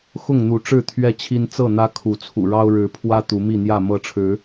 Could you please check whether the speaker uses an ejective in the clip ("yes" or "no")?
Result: no